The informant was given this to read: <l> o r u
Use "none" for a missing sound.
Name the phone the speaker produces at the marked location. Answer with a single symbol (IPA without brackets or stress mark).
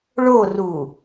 ɭ